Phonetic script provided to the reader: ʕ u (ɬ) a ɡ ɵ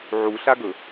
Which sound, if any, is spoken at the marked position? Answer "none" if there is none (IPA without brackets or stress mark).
ɬ